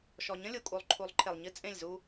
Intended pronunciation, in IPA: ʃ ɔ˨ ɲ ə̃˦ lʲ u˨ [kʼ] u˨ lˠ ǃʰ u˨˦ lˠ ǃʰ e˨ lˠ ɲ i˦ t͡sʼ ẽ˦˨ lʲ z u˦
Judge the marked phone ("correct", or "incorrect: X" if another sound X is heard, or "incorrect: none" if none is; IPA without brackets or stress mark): correct